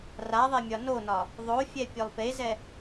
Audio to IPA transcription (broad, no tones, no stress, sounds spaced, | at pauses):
r a ðˤ e mʲ ɒ n o n ɒ | ðˤ o fʲ ɛ pʲ ɵ lˠ p e z ɛ